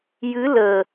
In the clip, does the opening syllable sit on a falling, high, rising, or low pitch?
rising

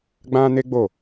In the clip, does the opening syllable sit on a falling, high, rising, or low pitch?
high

